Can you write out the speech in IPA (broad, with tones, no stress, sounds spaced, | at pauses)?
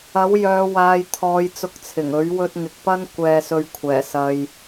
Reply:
ɐ˨˥ w j œː˨˧ w aː˨ j t̪ʰ ɔː˨ j t͡s ʊ˧ k̚ t͡sʰ ɪ˨˩ ŋ ɵ˨˥ ɥ w ɵ˧ t̚ ŋ ɪ˨ k̚ p ɐ˥ n kʷ ɛː˧ s ɵ˧ ɥ kʷʰ ɛː˨˩ s ɐ˨ j